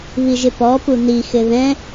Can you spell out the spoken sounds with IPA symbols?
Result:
βiʒɪpɔpu nixɪ ðɛ̃

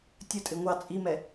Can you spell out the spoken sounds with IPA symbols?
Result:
tʲʌtʼɪ ŋʷɑ t͡sʼimɛ

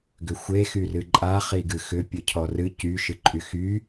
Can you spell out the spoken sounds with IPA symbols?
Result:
ɡʏxʷe xyrɨǃʼa χiɡɨxʏ pʲɨcʰɔrɨ cy ʃɨǃʼyxy

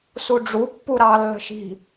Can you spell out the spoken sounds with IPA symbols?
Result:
suɖ͡ʐu pːuɾɑlːə̤ʃi̤

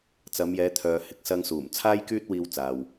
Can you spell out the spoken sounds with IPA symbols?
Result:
t͡sɐ˨˧mjɛː˨˧t̪ʰœː˨hɪ˨˥k̚ sɐ˧ŋsuː˨˩mt͡sʰaː˥jkyː˥t̚ wiː˧wt͡saː˨w

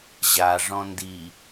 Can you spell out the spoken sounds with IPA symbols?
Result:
ʑa ʐɔ̃ndi

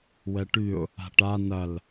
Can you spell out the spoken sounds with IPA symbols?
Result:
wɛʈyʊ̯ | a̤ʈa nɐl

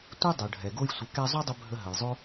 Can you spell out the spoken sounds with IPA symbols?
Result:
tʷi˦ dˤo˨ɖʱɛ˨ɡo˦jsʷə˨˦ kɛ˧zˤɵ˦dˤə˧ bʱə˧ ɦə˨jzˤo˦

